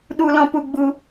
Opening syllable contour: high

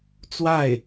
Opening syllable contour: falling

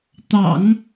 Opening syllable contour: low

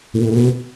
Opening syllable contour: rising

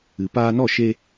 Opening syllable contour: low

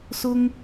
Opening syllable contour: high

